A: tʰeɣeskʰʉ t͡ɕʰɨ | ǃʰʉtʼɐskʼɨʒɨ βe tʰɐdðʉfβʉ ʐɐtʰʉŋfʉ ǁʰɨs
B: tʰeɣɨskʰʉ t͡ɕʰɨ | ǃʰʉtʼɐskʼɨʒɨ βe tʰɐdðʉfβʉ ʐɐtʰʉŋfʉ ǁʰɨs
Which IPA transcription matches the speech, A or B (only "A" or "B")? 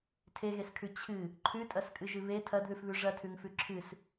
A